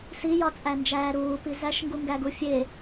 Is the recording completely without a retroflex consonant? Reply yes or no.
yes